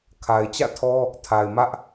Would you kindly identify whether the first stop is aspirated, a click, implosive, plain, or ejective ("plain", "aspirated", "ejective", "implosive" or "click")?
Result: aspirated